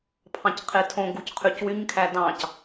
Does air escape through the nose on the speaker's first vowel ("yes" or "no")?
yes